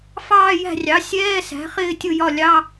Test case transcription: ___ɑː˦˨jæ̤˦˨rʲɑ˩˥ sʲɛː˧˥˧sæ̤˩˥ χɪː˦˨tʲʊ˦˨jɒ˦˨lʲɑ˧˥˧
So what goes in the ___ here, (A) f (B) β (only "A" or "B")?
A